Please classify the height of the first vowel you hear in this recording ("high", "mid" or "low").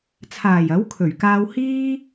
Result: low